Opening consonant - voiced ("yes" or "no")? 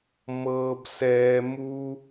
yes